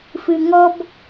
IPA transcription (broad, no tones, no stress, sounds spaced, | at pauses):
f ɨ ŋ ɔ b